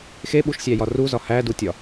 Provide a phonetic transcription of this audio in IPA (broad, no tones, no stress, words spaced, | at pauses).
xeɓuʃsʲæjɒ ruzɒ hædutʲɒ